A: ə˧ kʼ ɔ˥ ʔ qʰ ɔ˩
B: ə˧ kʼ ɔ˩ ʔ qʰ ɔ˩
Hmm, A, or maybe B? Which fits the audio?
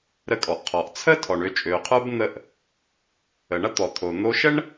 B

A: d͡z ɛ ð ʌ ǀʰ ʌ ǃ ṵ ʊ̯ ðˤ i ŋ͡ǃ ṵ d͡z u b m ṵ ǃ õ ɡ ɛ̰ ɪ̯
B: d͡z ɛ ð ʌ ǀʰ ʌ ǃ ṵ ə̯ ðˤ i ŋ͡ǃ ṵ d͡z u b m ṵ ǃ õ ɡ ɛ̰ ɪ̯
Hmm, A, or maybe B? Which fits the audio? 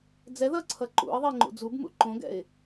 B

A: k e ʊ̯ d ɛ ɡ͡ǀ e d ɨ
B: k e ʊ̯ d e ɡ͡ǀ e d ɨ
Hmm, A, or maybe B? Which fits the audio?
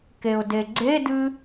B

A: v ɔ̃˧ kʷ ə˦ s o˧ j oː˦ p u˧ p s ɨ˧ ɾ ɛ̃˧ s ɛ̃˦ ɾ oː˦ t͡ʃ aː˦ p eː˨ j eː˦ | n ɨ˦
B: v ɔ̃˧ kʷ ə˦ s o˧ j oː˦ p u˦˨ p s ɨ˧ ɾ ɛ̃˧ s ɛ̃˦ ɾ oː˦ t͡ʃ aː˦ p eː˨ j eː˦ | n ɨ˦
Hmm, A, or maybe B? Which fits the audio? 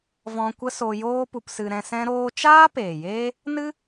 A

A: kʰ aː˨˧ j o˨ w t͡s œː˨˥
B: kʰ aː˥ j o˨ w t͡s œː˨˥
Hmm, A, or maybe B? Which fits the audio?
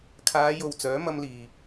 A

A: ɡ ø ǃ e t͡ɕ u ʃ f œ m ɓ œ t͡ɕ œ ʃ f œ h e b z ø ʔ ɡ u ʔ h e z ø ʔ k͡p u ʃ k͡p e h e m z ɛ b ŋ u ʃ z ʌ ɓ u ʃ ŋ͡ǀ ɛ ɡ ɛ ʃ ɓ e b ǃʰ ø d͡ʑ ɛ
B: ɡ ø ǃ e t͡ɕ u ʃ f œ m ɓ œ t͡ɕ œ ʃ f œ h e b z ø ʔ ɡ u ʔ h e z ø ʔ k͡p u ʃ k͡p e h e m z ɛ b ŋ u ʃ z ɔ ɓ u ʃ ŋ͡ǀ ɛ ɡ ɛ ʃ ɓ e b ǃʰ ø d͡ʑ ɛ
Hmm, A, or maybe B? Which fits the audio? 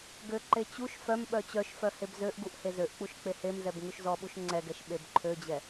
B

